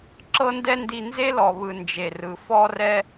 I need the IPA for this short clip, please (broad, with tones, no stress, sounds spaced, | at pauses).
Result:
ǁ ɤ˦ n d ɛ˦ n d i˧ n z e˦ l ɔ˨ β ɯ˨ n d͡ʒ e˨ r ɯ˨ f ɔ˧ r ɛ˧